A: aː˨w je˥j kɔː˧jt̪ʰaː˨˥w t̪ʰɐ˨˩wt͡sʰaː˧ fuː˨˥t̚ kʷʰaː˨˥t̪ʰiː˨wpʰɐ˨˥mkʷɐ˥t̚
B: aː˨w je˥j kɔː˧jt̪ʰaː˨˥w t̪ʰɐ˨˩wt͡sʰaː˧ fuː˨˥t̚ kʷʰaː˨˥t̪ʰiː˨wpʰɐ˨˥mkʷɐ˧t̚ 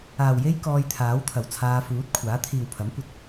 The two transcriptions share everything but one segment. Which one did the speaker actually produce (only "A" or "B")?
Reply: B